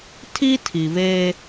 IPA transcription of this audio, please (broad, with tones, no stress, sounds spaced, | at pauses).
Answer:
tʰ i˦ tʰ i˨ β e˦